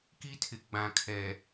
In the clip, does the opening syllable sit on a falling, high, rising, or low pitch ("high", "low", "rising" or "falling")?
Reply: high